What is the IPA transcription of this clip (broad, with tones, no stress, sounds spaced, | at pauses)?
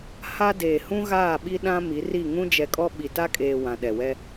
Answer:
h a˦ d eː˨ h ũ˦ ɣ aː˦˨ ɓ i˦ ɗ ã˦ m i˨˦ r i˦˨ ŋ ũ˦ d͡ʒ ɛ˨ kʼ ɔ˦ ɓ i˨ t a˦ kʼ eː˨ w ã˨ ɗ ɛ˨ w ɛ˦